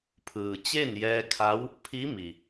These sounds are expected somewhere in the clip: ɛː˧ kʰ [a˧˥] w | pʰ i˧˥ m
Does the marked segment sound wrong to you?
no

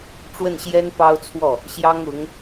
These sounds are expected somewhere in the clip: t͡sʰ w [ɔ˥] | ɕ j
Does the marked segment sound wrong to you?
yes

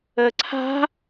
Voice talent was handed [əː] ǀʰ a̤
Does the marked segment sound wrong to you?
no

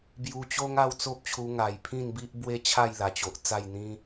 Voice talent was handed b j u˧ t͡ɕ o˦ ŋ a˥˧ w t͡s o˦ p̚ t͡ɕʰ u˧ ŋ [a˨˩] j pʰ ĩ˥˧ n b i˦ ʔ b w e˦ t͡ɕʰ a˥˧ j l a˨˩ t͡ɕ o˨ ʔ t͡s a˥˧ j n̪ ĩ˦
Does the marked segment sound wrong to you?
no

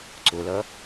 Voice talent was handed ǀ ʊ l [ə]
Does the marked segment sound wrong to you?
yes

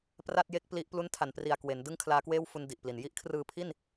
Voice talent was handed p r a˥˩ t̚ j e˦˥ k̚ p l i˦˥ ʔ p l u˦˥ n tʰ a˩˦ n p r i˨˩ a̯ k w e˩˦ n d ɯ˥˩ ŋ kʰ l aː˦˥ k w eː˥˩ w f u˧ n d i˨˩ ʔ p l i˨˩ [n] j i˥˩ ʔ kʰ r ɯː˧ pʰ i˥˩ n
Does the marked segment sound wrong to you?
no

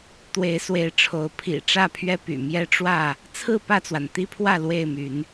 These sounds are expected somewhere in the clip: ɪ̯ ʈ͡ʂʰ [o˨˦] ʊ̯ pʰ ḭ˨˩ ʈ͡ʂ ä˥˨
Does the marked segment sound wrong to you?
no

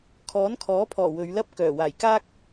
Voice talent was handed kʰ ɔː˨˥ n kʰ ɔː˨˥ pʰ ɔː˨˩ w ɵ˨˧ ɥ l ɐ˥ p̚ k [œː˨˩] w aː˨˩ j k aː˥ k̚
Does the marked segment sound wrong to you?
no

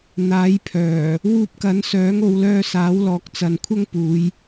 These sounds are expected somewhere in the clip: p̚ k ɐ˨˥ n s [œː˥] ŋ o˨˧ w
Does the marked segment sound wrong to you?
yes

